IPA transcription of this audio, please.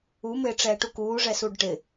u mɪːʈ͡ʂɛːʈukuː ʐɛsuːɖʈɪ

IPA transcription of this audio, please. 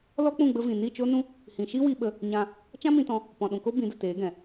lɔ˦k͡pũ˦˨ ɡ͡bə˦vĩ˨ ni˦˨t͡ʃo˦nũ˦ | hĩ˨ʃi˦wi˧ɓə˧ | ɲã˧ | t͡ʃã˦mĩ˧tɔ̃˧ | pɔ̃˨ɗũ˨ko˦ bĩ˨˦də˨teː˨˦ɡɛ̃˨

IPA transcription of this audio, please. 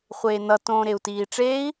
χʷeːnʌ tõːɾeu̯tiːʈ͡ʂei̯

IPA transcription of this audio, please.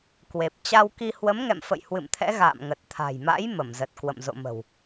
kwe˨˩p̚ t͡ɕa˧wki˧ hwə˨˦mŋɛ̰˧˨m fə̰˧˨j hwɨ̰˧˨mt̪ʰɛ̰˧˥ ɣa̰ː˧˨mŋə˨˩t̚t̪ʰa̤˨˩jma̰˧˥j mə˧˩mzə˨˩t̚ kwə̰˧˨mzo̰˧˨mə̤˨˩w

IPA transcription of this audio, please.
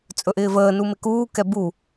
t͡sʼɵʔɪːvəː numɪkuː kɛbu

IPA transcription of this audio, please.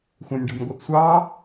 xʷæ̃nʲɖɔ̤nʲɡʷəʔsʷɑ

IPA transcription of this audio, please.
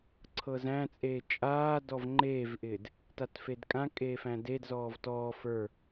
ǀʰɤzæ̃t͡sʼeː t͡ʃʼaː dɔvŋ͡ǃeːvʔɪːd | tatfedkʼãkʼeː fæ̃dedzɔːv tɔː fə˞

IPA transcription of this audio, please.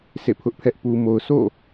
sḛ˦˨pʰʊ˦ʔpʰɛ˦ʔ pu˨mo˨ʊ̯sʰo̰˦˨

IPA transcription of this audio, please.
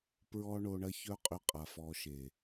pɹɔ˦ɳo˧ɳɐ˦ çœ˦qʼʏ˧qʼa˨f ɔ˧ʃe˨

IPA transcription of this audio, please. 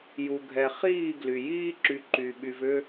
ju˨ɡʱɛ˨ χiː˦˨ ɡly˨ jiː˦ǁy˨ ǃy˨ ɓy˨vʏ˦

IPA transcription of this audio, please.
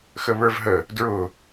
xəβə˞vɦə | dɹʊ

